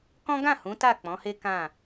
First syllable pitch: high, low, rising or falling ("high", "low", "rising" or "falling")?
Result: high